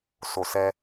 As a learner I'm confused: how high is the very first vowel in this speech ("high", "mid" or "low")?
mid